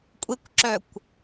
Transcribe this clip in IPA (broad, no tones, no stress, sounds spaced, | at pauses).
kʷʼ e kʷ ǁ œ kʷ